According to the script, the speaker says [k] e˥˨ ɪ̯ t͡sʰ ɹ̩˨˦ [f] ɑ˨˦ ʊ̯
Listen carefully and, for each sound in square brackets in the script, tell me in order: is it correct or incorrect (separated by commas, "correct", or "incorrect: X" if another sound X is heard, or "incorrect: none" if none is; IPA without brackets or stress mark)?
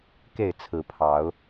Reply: correct, incorrect: pʰ